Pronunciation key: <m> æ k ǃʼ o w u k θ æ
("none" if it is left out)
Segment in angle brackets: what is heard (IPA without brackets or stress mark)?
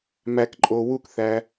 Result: m